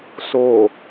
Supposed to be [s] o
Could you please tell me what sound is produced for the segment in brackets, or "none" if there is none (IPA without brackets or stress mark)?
s